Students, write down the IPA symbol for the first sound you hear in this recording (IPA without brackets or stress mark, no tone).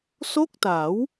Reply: s